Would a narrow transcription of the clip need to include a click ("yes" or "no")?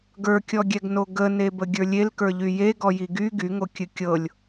no